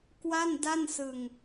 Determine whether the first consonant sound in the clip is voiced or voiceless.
voiceless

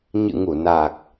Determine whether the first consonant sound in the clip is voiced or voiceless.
voiced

